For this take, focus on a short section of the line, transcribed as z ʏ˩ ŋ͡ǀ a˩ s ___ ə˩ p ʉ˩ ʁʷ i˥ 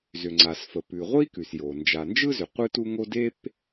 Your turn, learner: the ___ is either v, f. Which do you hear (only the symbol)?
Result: f